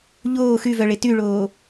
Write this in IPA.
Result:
ʎoː xyvœɭe tyɭoː

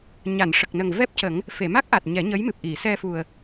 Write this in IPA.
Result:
ɲa˨˩˨nʂə˨˩k̚nə˨˩ŋ vɛ˦˥p̚cə˨˩˦ŋ | fe˨˩˨ma˦˥k̚ʔa˨˩t̚ ɲɛ˨˩˦ɲə˧˥jmɨ˨˩p̚ ʔi˨˩˨ sɛ˧fu˨˩ə̯

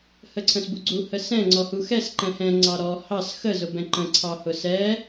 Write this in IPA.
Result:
həǀʰə̃sbuɡ͡ǀu həsɛ̃ ŋ͡ǀɔhuxɛs ǃɛ̃hɛ̃ ŋ͡ǀɑɾɔ hɑs xə zʊbɛ̃ǃə̃ ǀʰɑhʊsɛ

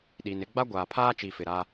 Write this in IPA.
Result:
ɗi˨nɪ˦ ɡ͡ba˦ɡʷaː˨pʰaː˦ t͡ʃi˨fɪ˨ɾa˦

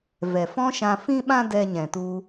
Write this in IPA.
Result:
vɛ˨ fɔ̃˦ʃã˧fĩ˦ɓã˦ dɛ˧ɲɛ̃˨tu˧

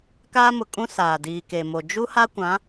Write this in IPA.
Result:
kaː˦mʊ˨kʼũ˦ saː˨diː˨ke˨mo˨ d͡ʒu˦ha˦kʷã˨˦

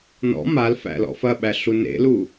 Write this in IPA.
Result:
nɔ̰ mal fæ̰lɔ̰fɐɓæ ɬunḛlu

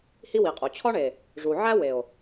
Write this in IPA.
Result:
hi˦wi˨qʼo˨ t͡ɕʰɒ˦ɳe˨ | ʐu˨ʕæ˦ we˨o̯

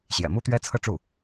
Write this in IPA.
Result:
ɕjɛ̰˨˩mu˥t̪ɥɛ˥ t͡sʰɤ˥˧ʈ͡ʂu˥˩

